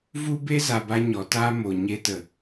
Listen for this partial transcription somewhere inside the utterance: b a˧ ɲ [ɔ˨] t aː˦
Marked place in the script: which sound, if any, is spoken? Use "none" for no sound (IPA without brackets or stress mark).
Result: ɔ˨